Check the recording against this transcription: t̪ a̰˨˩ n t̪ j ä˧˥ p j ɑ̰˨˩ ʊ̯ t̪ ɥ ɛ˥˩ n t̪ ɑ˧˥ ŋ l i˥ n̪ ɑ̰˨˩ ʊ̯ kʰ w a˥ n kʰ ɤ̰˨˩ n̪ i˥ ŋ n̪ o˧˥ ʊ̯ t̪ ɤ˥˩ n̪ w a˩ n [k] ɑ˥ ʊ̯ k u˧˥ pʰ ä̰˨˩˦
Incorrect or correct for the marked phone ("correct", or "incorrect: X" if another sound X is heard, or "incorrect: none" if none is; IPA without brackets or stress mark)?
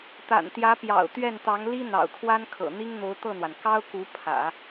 correct